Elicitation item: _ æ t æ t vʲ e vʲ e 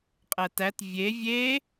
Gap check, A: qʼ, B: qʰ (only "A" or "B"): A